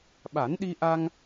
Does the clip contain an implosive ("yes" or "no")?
yes